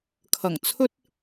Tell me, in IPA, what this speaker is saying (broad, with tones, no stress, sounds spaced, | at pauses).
kʰ ɐ˨˩ ŋ t͡sʰ ɵ˧ t̚